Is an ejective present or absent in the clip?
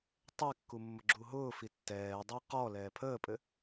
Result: present